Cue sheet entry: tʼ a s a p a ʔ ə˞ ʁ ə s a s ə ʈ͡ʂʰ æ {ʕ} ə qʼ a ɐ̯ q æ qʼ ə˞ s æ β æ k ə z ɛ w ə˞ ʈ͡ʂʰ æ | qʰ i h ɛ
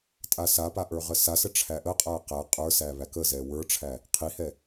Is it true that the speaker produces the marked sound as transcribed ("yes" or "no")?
no